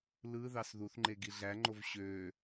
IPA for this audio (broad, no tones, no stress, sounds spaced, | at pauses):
l ɯ ð ɑ s ð u θ ŋ͡ǃ e ɡ i ɮ æ ŋ͡ǃ o v ɕ ø